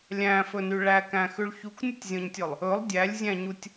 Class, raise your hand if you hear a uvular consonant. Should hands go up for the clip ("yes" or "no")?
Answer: no